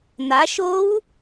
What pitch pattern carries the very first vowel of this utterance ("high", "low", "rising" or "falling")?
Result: rising